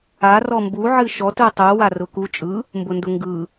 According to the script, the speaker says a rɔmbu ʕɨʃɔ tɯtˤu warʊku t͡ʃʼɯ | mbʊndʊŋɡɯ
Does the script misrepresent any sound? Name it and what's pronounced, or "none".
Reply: none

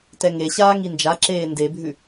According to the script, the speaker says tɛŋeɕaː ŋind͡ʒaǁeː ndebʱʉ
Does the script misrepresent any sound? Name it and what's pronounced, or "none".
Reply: none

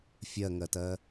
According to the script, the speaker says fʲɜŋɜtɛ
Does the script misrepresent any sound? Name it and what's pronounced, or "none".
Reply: ɛ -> ɜ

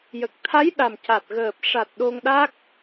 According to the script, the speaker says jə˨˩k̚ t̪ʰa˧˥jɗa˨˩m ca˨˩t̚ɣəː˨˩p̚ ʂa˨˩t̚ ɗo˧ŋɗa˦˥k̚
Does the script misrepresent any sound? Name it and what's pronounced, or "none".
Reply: none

